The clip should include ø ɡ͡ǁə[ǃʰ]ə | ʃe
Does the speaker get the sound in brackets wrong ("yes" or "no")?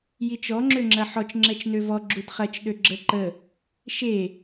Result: yes